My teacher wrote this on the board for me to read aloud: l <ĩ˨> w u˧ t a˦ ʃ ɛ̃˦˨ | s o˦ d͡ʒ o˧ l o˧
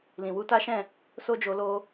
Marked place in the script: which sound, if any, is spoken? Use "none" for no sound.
ĩ˨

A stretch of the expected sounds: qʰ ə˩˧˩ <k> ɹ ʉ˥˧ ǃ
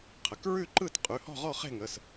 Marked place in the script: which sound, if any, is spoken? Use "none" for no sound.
k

